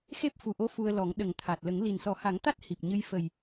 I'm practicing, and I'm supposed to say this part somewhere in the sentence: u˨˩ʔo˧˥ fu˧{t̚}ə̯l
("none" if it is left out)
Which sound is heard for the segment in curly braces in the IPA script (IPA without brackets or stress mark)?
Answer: none